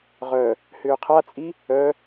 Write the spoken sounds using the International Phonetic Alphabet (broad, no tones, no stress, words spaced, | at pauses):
ʁœ | hʏːqʰat͡sʼi | œ